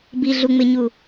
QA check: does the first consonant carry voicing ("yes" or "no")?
yes